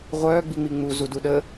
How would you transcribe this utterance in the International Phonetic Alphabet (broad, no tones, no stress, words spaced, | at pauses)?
ʁʷœː ɡ͡biŋ͡miŋ͡mu zuduɗə